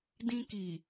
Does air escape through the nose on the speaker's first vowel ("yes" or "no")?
yes